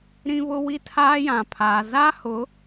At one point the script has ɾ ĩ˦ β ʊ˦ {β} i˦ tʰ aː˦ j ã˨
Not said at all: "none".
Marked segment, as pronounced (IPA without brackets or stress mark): w